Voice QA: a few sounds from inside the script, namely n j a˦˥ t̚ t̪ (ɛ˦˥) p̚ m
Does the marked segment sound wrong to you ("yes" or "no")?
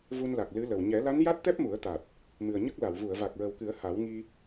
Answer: no